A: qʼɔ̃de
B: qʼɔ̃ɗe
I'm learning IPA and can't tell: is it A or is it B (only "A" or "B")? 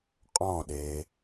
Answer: B